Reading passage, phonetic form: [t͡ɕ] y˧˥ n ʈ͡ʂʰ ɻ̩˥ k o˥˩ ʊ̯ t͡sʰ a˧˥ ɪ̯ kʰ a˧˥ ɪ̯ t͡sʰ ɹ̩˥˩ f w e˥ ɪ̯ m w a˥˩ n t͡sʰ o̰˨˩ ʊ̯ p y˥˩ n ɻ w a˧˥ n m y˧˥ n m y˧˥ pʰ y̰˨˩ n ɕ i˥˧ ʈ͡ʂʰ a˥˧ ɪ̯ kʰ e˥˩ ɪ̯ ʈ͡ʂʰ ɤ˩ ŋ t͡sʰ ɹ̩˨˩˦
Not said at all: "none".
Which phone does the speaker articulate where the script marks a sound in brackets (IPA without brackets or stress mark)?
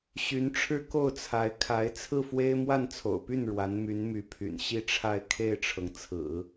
ɕ